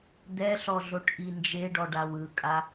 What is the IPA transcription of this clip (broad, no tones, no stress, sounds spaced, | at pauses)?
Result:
d̪ ɛ ɬ ɔ ɮ o ʈ ʔ i n d͡ʒ e ɖ ɔ ɖ a w ɯ kʼ a